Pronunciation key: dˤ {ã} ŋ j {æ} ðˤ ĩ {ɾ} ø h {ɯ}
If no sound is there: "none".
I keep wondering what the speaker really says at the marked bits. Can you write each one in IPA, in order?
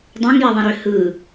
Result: æ̃, æ, ɾ, ɯ

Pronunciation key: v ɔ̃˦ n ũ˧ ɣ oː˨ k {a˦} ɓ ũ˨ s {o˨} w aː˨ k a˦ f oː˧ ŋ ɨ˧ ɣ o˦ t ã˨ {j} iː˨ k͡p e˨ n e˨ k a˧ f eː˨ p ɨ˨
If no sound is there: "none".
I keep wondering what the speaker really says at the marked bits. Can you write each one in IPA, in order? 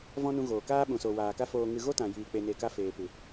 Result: aː˦, o˨, j

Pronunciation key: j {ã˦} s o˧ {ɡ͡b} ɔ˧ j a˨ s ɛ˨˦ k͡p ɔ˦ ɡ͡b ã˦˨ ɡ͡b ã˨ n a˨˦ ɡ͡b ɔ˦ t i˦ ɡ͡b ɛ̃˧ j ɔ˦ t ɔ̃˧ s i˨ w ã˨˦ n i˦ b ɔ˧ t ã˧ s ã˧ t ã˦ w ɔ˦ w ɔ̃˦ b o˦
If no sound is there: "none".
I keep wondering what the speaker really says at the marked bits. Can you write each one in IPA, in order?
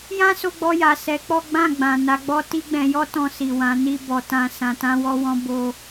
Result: ã˦, ɡ͡b

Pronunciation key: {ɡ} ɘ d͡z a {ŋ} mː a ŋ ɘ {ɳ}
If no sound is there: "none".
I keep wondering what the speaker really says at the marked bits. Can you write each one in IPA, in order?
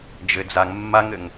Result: d͡ʒ, ŋ, ŋ

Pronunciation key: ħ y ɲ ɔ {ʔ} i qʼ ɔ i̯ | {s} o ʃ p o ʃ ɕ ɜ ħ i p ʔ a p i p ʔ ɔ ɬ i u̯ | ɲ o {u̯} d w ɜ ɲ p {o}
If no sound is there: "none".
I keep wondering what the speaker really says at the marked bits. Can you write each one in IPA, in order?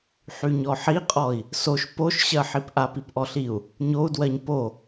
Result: ħ, s, u̯, o

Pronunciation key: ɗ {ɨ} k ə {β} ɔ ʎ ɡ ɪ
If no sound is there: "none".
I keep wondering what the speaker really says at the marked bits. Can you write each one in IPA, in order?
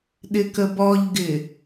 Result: ɪ, b

